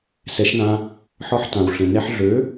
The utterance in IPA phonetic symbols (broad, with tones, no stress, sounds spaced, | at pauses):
s ɛ˩˥ ʃ n ã˧ | ħ ɒ˧ ħ t ã˩ w ɬ ẽ˩ n ɛ˧ ħ ɮ ø˩˥